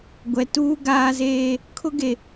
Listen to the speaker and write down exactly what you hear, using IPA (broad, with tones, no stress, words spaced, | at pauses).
ɡʷɛ˨ tuː˦ ɡaː˦zeː˦ | kʰʊ˦ɡe˨